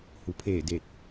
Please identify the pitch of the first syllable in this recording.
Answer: low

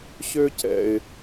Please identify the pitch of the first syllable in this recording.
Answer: high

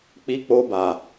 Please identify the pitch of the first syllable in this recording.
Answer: high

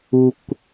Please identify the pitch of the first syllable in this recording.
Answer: low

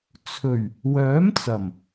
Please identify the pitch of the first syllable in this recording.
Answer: low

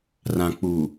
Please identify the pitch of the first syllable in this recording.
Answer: low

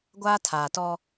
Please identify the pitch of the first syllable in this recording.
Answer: high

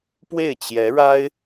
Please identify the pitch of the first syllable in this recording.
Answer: falling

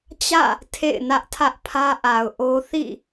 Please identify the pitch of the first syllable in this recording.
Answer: falling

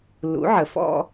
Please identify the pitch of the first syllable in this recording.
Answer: rising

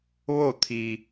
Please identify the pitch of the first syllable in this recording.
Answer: falling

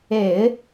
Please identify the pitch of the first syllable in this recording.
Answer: low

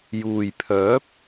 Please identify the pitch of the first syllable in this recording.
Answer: low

